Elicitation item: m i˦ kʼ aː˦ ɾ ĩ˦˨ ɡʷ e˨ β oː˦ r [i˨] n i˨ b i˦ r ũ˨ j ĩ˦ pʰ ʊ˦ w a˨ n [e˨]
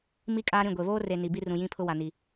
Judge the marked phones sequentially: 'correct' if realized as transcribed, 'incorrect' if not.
incorrect: e˨, incorrect: i˨

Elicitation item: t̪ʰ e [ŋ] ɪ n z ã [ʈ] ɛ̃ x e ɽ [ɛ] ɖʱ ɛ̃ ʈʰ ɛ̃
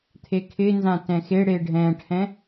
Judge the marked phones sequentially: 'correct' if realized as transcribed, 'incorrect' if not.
incorrect: kʰ, incorrect: t, incorrect: e

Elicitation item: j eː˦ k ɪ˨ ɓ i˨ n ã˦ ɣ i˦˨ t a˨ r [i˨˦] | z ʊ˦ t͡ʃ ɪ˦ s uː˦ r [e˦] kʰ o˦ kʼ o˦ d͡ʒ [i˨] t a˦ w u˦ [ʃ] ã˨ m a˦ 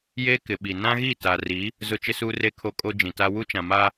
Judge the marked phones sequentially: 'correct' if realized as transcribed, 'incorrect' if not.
correct, correct, incorrect: ĩ˨, incorrect: t͡ʃ

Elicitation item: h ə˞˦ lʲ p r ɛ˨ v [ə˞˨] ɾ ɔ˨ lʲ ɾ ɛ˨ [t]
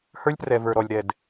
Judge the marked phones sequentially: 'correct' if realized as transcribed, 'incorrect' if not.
correct, incorrect: d

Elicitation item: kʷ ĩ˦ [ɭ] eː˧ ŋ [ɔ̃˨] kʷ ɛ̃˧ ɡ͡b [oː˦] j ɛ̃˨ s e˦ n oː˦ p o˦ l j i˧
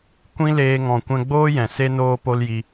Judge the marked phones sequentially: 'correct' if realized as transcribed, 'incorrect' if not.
incorrect: l, correct, correct

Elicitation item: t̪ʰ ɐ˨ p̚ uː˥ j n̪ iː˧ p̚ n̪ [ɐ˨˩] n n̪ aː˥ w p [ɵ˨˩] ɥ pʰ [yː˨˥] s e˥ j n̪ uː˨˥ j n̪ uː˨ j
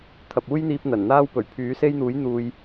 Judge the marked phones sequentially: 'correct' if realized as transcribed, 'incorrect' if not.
correct, correct, correct

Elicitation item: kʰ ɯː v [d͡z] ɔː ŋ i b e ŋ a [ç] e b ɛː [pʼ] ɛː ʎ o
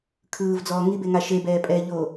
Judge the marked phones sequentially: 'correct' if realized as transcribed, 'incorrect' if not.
correct, incorrect: ʃ, correct

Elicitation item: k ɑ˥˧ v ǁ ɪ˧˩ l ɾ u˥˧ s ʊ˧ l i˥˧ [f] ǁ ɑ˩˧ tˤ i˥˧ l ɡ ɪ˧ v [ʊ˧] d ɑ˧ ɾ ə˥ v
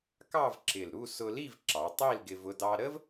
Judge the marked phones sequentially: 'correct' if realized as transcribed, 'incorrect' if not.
incorrect: v, correct

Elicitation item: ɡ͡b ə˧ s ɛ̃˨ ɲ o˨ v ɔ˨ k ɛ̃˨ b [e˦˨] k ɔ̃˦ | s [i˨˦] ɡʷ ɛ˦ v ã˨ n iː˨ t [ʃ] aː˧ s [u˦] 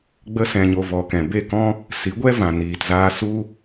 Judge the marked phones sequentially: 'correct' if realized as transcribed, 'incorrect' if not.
correct, correct, incorrect: z, correct

